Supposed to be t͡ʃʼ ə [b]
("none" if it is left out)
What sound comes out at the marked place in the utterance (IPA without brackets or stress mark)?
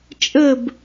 b